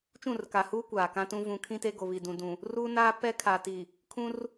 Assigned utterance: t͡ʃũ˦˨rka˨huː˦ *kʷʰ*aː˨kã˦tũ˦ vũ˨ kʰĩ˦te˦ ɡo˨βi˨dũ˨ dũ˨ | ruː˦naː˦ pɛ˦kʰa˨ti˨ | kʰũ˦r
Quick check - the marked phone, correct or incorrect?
incorrect